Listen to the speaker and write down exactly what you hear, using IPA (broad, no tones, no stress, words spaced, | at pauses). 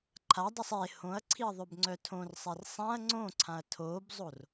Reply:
ǃʰadˤysˤ e hõɐ̯ǀʰiɐ̯ ðˤøbŋ͡ǀœtʰõrsˤɛr sˤãɐ̯ ŋ͡ǀõǀʰãɐ̯ tʰobzˤor